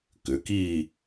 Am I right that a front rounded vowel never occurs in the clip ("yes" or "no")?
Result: no